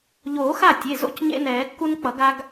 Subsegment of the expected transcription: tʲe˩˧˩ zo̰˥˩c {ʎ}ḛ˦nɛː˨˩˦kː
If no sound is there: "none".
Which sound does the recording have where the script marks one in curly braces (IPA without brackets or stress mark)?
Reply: ɲ